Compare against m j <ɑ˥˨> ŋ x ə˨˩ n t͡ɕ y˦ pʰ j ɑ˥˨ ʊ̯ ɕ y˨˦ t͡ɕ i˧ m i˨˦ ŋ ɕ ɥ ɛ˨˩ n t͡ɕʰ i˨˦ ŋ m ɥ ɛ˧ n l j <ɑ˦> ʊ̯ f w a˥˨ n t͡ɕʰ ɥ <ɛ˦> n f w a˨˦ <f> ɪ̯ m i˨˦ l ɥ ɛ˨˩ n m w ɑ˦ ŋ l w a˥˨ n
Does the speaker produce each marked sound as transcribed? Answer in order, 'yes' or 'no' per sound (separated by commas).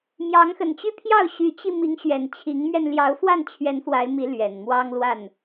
no, no, no, no